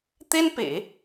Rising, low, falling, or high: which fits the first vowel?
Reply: high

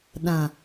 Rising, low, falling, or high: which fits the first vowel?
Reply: low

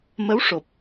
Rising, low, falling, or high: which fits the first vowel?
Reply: rising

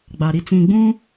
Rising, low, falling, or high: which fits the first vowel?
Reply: low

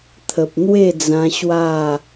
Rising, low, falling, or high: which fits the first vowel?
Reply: low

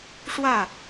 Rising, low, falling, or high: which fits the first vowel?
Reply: falling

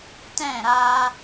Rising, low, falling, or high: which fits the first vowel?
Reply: falling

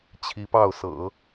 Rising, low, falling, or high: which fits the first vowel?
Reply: rising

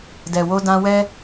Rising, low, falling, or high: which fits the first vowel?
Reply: low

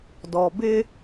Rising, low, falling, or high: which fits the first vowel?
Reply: low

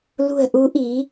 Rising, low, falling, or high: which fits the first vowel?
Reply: low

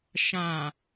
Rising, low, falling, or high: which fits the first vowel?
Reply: low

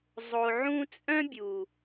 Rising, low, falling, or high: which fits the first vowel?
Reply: low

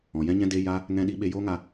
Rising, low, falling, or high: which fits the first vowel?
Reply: low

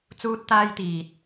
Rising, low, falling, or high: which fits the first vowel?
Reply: high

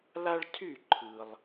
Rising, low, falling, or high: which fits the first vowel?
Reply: high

